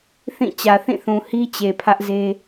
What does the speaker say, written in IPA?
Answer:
θĩ˦˨ t͡ɕä˨θĩ˦˨θũ˨hi˦ t͡ɕe˨pʰä˦ʔze˦

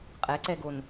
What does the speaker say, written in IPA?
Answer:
qʼɛǀɛɡon

